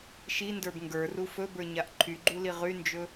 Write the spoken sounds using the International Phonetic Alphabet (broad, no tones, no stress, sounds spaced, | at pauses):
ʃ i n d ə˞ b ŋ ɡ ə˞ r u f ɵ b ə˞ ɲ a ʔ ǃʰ y ɡ͡ǃ u l i ʁ y n d͡ʒ ɵ